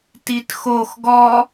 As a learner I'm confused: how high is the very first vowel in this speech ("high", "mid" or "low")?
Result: high